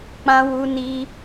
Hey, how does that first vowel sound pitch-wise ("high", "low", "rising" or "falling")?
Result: high